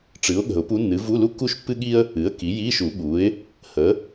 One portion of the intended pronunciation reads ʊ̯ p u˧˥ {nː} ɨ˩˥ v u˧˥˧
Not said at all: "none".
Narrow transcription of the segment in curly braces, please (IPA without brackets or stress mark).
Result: nː